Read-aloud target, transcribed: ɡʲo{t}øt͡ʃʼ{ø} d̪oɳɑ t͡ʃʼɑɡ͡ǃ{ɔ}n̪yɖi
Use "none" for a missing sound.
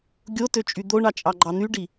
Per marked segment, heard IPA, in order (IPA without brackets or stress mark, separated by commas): t, y, ɑ